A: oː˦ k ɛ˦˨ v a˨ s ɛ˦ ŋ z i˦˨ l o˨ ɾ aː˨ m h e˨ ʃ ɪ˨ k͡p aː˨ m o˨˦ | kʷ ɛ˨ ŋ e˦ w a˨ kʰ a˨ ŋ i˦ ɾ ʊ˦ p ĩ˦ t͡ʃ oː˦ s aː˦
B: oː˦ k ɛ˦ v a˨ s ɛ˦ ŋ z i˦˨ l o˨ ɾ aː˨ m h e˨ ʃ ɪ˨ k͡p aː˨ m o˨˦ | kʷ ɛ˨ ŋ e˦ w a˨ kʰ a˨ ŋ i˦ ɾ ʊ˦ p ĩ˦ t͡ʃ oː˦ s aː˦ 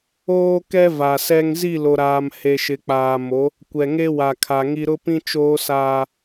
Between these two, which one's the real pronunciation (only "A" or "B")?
B